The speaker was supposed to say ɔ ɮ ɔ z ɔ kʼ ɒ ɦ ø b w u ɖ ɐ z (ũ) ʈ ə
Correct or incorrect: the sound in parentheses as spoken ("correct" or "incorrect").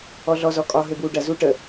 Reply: incorrect